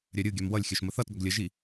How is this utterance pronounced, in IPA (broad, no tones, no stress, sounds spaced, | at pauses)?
ɾʲ œ ɾʲ ɯ ɡʲ œ m w ʌ lʲ xʲ œ ʃ m ə θ ʌ t ɡ ʌ ɡ lʲ ə ʒ i